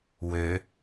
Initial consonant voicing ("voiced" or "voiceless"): voiced